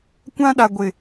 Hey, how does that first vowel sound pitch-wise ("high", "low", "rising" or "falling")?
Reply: high